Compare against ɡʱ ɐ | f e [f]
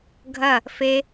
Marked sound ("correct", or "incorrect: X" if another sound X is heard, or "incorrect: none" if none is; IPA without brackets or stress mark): incorrect: none